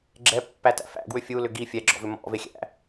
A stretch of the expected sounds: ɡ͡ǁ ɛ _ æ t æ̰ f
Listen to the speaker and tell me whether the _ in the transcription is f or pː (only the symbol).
pː